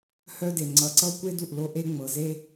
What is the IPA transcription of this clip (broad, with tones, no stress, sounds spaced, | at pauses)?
h œ˧ d e˩ ŋ͡ǀ ʌ˩ ǀ ʌ˧ kʷ e˧ d u˩ ʔ l o˧ ʔ e˧ ŋ͡m ɤ˩ z e˧